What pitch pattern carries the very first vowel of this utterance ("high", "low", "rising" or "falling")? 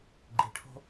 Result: low